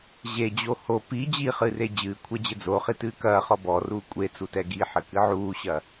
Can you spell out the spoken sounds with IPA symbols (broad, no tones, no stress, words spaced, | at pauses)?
ʑed͡ʑo ho pi d͡ʑiχɨre d͡ʑɨːkʷʰɛd͡ʑɘ d͡zoχitɨː kɐːχɔ bɔruː kʷʼet͡sutɛ ɡiħɘkɨ ʕuːɕɐ